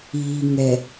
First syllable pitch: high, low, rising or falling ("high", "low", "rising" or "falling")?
low